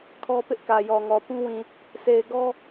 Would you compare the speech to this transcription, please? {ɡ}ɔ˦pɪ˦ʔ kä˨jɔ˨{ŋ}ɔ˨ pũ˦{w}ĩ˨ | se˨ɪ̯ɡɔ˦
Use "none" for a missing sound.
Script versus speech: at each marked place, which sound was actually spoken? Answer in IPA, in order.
kʰ, ŋ, w

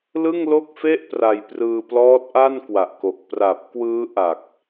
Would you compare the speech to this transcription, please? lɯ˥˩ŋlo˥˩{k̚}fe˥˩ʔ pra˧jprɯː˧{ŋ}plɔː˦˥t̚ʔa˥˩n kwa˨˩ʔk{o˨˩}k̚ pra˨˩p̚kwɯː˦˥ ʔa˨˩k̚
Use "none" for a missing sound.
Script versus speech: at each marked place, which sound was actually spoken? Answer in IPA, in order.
k̚, none, o˨˩

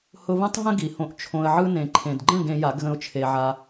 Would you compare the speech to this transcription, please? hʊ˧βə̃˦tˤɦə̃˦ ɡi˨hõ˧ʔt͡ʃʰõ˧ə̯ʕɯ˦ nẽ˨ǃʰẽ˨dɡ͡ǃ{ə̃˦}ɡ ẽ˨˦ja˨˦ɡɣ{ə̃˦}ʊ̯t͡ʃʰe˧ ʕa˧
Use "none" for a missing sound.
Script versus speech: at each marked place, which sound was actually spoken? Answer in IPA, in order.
ə̃˦˨, ə̃˦

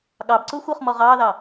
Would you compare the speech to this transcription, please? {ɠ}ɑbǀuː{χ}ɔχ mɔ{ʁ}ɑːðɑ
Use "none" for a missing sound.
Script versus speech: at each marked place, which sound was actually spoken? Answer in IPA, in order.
ɠ, xʷ, ʁ

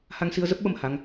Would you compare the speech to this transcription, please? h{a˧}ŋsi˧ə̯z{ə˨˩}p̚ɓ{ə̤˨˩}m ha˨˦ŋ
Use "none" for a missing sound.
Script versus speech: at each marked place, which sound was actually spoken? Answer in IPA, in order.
a˧, ə˦˥, ə˧

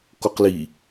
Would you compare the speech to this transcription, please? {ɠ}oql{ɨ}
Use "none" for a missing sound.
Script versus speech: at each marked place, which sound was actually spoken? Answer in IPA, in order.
k, i

